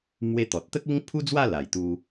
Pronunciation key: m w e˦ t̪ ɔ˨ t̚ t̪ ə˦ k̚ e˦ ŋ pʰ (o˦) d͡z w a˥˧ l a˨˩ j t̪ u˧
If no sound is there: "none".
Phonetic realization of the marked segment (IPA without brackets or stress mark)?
u˦